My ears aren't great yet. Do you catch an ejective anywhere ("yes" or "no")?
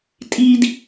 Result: yes